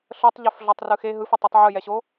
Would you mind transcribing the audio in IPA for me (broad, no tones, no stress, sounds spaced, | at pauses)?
ɬ ɤ tˤ ʎ ɛ f ɮ ɔ tˤ r ɯ x e ɦ ɯ f a tˤ i tˤ ʕ ɯ j ɛ ɕ o